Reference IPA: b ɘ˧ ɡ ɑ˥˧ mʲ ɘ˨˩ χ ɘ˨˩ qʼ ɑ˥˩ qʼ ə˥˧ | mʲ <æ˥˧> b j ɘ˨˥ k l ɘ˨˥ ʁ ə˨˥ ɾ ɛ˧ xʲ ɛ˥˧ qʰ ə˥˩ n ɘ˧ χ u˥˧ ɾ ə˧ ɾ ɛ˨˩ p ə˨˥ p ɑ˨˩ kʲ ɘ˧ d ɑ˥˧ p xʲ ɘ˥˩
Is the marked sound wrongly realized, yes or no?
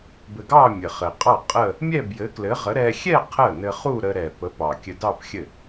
yes